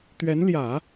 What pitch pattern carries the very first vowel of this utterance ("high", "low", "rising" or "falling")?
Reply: rising